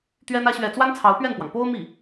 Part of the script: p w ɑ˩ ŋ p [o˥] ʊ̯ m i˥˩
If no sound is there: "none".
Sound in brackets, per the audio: o˥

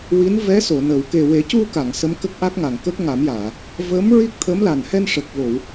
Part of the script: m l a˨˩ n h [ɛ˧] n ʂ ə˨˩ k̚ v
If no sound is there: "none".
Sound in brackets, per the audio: ɛ˧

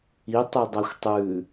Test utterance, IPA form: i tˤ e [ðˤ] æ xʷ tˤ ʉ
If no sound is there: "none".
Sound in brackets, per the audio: dˤ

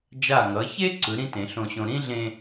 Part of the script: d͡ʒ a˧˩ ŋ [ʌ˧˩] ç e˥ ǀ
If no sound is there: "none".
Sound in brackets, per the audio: ʌ˩˧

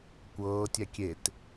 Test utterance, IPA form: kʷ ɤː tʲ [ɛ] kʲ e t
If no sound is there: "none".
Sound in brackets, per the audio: ɛ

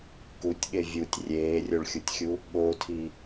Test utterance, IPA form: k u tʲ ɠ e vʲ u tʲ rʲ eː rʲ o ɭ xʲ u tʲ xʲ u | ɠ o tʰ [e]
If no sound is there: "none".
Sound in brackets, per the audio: i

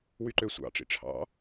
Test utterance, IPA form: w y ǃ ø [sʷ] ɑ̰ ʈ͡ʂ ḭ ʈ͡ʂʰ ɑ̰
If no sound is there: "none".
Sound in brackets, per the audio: sʷ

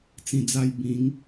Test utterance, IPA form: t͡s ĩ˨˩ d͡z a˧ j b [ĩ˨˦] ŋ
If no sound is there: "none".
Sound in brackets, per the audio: ĩ˨˦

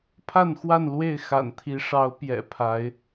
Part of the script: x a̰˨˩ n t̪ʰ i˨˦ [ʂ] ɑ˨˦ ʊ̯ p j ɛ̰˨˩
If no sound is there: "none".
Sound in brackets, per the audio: ʂ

